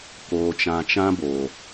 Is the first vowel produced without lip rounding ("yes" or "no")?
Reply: no